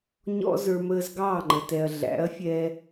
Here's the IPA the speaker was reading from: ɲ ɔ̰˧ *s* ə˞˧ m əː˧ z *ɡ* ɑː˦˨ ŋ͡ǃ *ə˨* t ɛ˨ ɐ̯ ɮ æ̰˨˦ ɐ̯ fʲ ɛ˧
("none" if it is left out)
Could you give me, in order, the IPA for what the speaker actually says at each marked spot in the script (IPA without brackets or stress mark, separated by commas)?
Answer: z, ɡ, ə˨